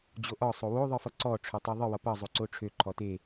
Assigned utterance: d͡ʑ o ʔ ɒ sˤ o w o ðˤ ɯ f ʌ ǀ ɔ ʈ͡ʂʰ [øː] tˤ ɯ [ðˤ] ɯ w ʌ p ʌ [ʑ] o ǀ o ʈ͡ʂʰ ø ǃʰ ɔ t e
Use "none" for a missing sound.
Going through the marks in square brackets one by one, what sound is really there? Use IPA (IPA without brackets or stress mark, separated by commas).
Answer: ø, ðˤ, zˤ